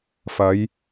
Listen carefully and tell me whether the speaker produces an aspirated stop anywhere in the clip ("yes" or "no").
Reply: no